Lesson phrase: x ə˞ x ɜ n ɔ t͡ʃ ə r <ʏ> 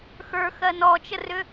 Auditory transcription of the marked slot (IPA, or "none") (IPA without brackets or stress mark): ʏ